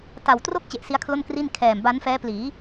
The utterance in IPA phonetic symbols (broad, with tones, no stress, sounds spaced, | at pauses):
t a˨˩ w t r o˥˩ k̚ t͡ɕ e˨˩ ʔ s i˦˥ a̯ kʰ l o˥˩ n k r i˥˩ n kʰ ɛː˨˩ m b a˦˥ n f ɛː˦˥ p l iː˩˦